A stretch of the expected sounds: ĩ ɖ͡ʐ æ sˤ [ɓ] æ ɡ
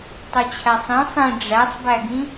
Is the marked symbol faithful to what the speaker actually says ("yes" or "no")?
no